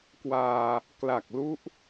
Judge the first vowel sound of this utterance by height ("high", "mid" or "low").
low